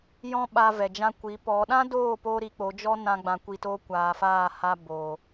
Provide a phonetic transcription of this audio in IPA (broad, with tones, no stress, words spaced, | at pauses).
jɔ̃˦ɓa˧ vɛ˨d͡ʒã˧ kʷi˨˦pɔ˨˦ ɗã˦doː˦˨po˧ ɾi˧k͡po˨˦d͡ʒɔ˦ nã˦ɡ͡bã˧kʷi˧toː˦ kʷaː˨faː˦˨ha˧ boː˨